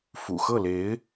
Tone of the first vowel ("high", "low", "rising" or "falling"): low